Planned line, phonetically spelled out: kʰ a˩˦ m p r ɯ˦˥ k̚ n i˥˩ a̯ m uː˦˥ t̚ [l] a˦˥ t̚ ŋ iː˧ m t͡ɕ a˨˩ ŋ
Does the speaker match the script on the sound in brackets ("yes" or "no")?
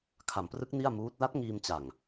yes